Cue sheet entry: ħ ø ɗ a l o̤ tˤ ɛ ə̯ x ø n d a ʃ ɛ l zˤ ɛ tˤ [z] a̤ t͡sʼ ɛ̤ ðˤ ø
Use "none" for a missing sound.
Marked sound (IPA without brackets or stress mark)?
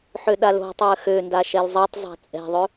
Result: zˤ